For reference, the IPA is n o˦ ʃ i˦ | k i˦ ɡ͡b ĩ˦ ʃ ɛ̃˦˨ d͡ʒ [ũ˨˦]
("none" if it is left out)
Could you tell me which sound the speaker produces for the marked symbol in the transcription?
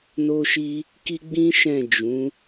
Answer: ũ˨˦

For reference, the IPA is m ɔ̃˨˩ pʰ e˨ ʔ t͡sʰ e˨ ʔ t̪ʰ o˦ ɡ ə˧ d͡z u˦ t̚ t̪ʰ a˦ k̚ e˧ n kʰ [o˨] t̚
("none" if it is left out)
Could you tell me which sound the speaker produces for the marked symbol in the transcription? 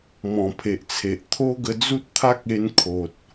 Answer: o˨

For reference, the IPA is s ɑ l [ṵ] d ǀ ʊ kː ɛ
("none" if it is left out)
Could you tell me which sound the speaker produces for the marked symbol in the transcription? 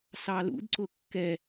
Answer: ṵ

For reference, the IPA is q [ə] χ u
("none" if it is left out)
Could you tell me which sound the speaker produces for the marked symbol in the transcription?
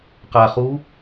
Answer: a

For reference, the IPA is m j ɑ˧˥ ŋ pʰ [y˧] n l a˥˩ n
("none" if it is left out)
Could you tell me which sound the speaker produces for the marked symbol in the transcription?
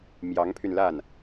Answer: y˧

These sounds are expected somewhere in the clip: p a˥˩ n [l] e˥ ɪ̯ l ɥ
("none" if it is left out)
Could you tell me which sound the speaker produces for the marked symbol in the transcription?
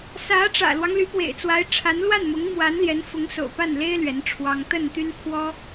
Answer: l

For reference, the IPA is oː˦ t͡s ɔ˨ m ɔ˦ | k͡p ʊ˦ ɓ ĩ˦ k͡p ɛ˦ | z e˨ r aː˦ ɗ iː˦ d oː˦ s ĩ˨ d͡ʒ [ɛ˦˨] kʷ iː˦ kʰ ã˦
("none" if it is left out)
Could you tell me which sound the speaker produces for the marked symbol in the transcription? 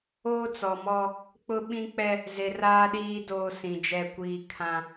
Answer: ɛ˦˨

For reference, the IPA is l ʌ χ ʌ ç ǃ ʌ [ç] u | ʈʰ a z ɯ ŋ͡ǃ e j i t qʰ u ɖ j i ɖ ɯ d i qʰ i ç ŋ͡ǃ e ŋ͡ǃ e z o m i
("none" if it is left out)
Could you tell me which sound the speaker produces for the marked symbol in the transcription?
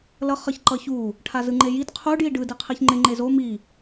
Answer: ç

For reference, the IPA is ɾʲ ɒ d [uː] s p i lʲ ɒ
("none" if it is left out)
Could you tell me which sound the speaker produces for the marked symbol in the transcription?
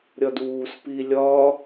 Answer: uː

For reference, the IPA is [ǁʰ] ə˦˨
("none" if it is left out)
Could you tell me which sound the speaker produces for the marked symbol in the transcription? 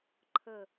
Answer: ǃʰ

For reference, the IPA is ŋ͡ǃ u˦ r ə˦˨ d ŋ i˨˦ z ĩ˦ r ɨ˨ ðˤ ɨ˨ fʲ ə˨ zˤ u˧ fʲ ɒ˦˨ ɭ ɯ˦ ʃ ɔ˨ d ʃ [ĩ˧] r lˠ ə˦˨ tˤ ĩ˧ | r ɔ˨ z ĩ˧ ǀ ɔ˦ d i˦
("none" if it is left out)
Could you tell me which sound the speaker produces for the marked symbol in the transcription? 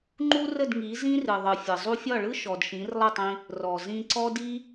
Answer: ĩ˨˦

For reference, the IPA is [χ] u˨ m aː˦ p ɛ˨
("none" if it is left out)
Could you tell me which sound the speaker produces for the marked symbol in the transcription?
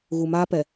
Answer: ɣ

